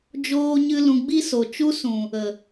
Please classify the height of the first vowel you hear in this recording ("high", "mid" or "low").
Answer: mid